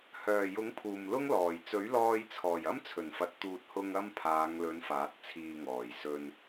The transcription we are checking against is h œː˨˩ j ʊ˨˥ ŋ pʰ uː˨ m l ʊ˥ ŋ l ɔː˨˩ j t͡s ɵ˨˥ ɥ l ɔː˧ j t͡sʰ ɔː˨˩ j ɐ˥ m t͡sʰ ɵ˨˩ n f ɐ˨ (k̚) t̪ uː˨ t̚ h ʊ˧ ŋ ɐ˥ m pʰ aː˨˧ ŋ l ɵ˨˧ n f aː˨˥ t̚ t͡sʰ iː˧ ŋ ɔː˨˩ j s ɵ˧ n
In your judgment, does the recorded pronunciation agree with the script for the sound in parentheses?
no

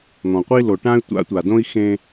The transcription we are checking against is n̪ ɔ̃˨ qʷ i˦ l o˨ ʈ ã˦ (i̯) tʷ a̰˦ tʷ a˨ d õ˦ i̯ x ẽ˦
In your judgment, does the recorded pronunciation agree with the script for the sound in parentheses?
no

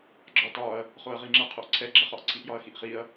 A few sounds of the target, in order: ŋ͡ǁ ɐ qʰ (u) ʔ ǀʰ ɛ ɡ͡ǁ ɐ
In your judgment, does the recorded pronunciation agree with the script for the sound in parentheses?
no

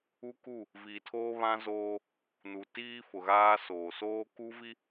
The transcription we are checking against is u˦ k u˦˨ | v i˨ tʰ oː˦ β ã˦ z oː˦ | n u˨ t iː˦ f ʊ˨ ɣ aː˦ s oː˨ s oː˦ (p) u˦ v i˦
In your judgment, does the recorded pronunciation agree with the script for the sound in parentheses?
no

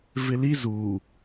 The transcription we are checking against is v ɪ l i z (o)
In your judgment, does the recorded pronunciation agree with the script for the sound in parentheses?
no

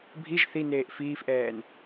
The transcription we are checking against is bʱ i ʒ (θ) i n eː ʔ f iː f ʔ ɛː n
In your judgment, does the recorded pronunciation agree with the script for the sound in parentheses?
yes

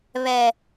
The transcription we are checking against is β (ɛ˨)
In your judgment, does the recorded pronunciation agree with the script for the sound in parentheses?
yes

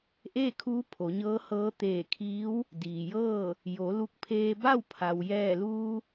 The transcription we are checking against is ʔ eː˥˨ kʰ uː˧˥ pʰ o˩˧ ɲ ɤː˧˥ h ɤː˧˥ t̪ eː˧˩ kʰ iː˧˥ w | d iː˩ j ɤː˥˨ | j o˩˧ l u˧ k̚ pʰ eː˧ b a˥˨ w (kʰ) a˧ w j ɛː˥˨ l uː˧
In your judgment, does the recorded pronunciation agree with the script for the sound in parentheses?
no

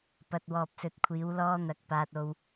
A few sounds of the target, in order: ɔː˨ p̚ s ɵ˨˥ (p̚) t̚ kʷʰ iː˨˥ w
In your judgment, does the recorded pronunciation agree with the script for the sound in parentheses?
no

